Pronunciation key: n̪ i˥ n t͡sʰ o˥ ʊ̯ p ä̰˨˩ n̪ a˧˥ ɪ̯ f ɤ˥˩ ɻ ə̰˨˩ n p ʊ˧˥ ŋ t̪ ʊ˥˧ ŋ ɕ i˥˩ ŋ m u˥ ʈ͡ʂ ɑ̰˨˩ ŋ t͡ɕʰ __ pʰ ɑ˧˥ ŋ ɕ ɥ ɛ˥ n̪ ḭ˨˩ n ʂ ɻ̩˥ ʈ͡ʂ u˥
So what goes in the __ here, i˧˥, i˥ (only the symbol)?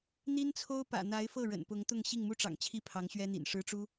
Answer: i˥